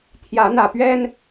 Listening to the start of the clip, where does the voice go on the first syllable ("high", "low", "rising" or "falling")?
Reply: rising